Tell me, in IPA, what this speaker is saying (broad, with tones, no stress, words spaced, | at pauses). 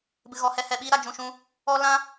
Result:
bɨ˨ɣɔ˨hɛ˧ hɛ˨ɓiː˧ɾa˨ d͡ʒũ˨ʃũ˧ | ɔ˧ lã˧